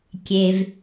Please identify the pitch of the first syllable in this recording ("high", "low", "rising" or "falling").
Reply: low